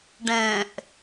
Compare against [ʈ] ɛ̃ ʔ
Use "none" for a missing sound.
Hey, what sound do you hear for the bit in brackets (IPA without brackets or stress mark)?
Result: ɖ